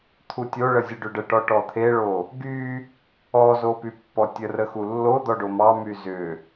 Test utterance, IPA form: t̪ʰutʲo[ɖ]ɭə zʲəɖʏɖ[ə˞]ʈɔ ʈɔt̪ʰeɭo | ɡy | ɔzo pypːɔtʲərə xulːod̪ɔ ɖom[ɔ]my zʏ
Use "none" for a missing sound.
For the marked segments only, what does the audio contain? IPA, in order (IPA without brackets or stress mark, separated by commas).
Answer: none, ə, ɑ